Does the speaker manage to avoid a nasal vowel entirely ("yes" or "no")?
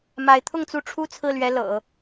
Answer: yes